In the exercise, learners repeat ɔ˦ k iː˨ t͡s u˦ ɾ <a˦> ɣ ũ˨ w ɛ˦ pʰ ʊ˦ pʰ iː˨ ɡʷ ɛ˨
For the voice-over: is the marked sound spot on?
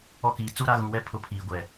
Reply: yes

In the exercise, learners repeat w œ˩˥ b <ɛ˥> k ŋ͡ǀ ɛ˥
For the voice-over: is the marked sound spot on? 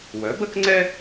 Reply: no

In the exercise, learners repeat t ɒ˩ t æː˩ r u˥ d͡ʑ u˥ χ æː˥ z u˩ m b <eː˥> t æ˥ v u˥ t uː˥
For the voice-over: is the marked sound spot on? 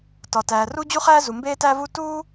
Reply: yes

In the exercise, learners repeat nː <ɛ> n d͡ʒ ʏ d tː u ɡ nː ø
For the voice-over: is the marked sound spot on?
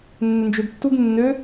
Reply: no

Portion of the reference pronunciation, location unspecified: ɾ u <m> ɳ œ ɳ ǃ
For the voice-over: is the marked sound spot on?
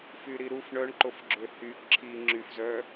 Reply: no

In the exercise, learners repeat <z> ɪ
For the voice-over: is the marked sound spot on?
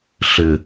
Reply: no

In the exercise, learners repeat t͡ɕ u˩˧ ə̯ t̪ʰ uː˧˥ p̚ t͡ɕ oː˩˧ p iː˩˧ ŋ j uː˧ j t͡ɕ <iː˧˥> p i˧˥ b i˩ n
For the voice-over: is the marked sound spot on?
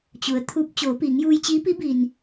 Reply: yes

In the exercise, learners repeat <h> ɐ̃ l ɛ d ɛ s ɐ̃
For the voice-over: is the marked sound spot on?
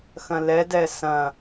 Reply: no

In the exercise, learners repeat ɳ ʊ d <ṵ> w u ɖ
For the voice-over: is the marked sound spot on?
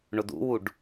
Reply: yes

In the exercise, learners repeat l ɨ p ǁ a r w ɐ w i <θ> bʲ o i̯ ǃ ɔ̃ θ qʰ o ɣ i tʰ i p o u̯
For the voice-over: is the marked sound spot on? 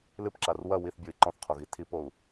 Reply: yes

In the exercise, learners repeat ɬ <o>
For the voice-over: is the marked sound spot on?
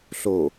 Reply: yes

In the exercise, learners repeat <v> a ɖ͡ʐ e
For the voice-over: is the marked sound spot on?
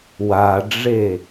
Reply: no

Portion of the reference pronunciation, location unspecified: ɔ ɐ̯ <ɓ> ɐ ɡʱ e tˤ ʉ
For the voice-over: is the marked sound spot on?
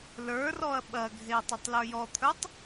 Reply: yes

